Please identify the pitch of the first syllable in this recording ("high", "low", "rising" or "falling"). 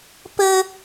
high